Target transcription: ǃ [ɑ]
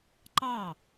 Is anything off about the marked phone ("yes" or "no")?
no